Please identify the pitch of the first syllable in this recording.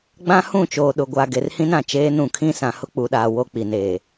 high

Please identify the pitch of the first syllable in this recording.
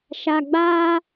low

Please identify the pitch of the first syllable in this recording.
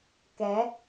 rising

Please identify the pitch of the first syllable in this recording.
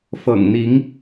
low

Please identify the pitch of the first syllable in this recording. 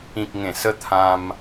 low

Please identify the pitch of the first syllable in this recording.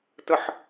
low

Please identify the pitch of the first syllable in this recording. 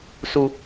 high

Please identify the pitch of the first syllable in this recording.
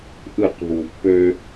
falling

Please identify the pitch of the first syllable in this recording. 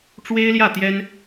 high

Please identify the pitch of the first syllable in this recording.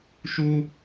high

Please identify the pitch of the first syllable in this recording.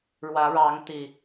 rising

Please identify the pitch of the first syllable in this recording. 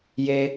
high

